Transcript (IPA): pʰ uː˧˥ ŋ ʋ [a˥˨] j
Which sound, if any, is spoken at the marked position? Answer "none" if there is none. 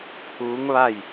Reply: a˥˨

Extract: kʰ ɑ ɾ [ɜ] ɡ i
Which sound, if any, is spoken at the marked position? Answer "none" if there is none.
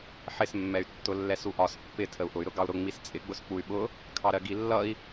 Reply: ɜ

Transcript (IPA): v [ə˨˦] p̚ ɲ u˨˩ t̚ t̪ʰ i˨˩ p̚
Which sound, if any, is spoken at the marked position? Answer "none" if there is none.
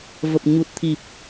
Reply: ə˨˩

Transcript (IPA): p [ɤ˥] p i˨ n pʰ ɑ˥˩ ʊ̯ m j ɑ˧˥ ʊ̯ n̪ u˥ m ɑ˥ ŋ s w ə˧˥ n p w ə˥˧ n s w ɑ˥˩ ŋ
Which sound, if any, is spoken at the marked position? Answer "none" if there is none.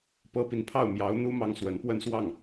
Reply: ɤ˥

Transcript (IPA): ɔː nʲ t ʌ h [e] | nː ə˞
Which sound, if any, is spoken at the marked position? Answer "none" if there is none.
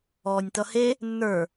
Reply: e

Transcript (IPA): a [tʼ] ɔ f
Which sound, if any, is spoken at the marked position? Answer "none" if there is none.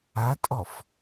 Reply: tʼ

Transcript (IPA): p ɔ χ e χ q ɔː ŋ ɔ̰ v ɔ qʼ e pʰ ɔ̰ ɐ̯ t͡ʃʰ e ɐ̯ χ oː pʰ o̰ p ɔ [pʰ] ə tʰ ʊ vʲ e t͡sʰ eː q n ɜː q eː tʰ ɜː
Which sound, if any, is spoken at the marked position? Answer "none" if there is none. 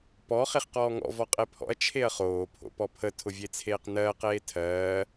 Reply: pʰ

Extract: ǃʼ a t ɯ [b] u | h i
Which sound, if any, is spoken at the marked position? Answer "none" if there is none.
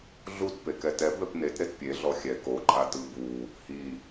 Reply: b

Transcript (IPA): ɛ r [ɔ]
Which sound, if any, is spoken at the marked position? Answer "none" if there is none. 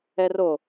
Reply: o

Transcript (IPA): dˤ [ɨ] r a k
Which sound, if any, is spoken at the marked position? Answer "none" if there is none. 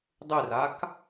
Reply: ɨ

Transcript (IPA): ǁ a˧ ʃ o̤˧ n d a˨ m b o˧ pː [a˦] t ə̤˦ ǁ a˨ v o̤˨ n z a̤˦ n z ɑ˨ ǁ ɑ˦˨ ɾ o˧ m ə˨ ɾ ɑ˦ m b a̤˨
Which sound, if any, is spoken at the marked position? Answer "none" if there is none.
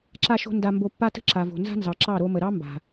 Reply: a˦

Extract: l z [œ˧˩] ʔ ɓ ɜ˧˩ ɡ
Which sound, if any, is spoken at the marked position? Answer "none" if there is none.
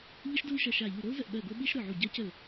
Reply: ə˧˩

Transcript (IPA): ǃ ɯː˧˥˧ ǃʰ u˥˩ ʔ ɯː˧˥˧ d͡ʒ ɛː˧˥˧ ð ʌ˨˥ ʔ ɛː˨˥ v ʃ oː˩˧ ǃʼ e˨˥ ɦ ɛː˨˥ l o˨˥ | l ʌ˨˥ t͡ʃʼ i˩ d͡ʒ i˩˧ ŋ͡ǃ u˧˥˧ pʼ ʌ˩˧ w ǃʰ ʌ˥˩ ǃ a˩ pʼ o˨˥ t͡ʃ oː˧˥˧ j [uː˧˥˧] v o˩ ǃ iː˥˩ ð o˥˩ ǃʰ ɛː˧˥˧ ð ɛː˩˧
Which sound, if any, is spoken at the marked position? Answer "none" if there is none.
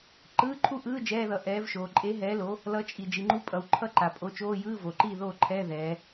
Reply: ɯː˧˥˧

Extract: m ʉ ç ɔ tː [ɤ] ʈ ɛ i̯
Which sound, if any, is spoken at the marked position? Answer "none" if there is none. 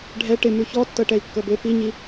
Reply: ɤ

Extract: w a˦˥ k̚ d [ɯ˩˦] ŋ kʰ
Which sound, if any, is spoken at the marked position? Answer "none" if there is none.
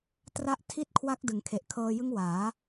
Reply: ɯ˩˦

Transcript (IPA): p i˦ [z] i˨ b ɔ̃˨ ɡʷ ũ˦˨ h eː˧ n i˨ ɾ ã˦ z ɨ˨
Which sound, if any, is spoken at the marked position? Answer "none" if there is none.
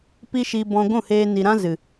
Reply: ʃ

